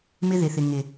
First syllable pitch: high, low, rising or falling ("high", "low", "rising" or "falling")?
high